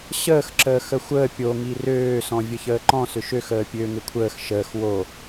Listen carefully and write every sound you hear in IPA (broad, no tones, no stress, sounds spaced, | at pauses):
ɕ əː x ǁ əː x ə xʷ əː pʲ o ŋ i r øː s ɔ̃ vʲ ə ç əː ǃ ɔ̃ s ʏ ʃ ø x əː pʲ ø ŋ ɪ kʷʰ əː x ʃ əː x w o